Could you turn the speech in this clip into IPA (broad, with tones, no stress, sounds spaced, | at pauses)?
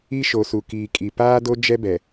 i˦ ʃ o˨ s u˨ k iː˨ kʼ i˨ p aː˦ d o˦ d͡ʒ ɛ˦ b ɛ˨